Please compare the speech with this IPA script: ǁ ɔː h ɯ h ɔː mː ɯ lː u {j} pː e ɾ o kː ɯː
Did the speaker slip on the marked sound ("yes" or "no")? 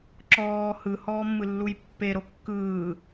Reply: no